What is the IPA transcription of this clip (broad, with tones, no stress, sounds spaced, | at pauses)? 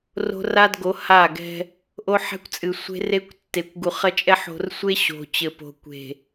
r o̤˦ r a˦ d ɡ o˨˦ h a˦˨ ɡ ɛ̤˦ | ʔ o˦ ħ ɛ̤˦ kʷ t͡sʼ ɨ˨ sʷ e̤˦ r e˦ kʷ tː e˨ kʷ ɡ u˨ χ ɐ˦ t͡ʃʼ ɛ˦ ħ o̤˨ r sʷ e˦ ɕ o̤˨ t͡ɕ ɘ˨ p o̤˨ kʷ e̤˨